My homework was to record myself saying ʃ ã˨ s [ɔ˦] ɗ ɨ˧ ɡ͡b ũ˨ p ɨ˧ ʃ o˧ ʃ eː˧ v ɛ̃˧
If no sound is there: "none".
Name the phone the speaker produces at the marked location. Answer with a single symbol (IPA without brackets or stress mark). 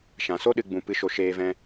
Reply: o˦